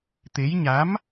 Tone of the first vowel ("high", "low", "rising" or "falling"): rising